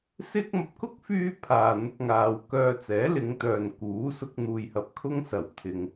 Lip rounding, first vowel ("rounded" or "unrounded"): unrounded